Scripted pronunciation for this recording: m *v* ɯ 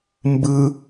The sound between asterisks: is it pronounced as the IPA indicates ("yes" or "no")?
no